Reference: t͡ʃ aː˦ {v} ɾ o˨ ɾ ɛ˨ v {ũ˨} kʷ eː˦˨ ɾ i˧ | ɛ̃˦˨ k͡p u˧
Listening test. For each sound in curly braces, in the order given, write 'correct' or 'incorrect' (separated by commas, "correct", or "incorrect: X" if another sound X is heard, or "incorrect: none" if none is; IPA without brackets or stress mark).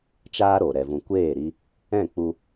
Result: incorrect: none, correct